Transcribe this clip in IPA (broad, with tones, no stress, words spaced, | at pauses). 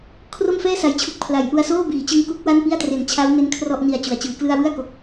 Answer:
kʰro˥˩mfɛː˥˩sa˩˦jt͡ɕʰu˨˩k̚ pʰla˩˦jʔu˧a̯ soː˥˩biː˩˦t͡ɕɯ˦˥ŋ ku˦˥k̚wa˥˩npi˥˩a̯tre˩˦n t͡ɕʰa˦˥wne˦˥n kʰrɔ˥˩ʔni˨˩a̯ t͡ɕu˩˦a̯t͡ɕɯː˩˦klɯ˥˩a̯ wɯ˥˩a̯ko˨˩k̚